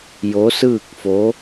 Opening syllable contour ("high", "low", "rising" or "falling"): rising